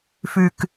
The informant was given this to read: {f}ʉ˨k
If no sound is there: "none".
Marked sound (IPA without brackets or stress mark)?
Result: f